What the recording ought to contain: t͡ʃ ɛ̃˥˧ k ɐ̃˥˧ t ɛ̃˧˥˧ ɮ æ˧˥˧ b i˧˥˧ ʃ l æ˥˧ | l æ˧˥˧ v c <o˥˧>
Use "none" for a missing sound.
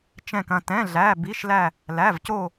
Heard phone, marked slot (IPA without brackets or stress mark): o˥˧